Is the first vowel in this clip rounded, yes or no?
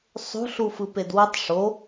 yes